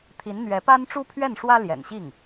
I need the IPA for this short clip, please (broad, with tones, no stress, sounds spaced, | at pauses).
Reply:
t̪ʰ i˧˥ n n̪ ɥ ɛ˧˥ p a˥ n ʈ͡ʂ u˥ pʰ ɥ ɛ˥˩ n ʂ w ä˥ l j ɛ̰˨˩ n ɕ i˥˩ ŋ